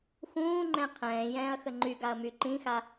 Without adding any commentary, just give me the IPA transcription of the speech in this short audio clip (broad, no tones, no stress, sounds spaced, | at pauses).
x ũː ŋ͡ǃ ɛ̃ qʰ ɛ̃ː j ɛ̃ː ɐ̯ x ə ŋ͡ǃ y ɡ a ɐ̯ m y ǃ ĩ x a